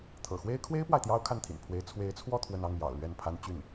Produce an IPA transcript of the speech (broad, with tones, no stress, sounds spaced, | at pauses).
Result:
t̪ʰ ɤ̰˨˩ x w e˥ ɪ̯ kʰ w e˥ ɪ̯ p w a˨ ɪ̯ t̪ j ɑ˥ ʊ̯ kʰ a˥˩ n t̪ʰ ḭ˨˩ n pʰ w e˧˥ ɪ̯ t͡sʰ w e˧˥ ɪ̯ t͡sʰ w ɔ˥˧ t̪ʰ w ə˥˧ n ɑ˥˩ ŋ j ɑ̰˨˩ ʊ̯ l ɥ ɛ˥˩ n pʰ a˥ n t͡ɕ y˥˩ n